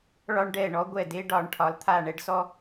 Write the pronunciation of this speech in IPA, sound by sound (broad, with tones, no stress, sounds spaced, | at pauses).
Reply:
ɭ ɒ˦ ɳ ɖ ɛ˧˩ ɳ ɔ˦ ɡʷ ɛ˧˩ d e˦ ɖ ɒ˩˧ ɳ ʈʰ ɒ˩˧ l t̪ʰ a˧˩ ɳ ɛ˦ ɖ s ɔ˦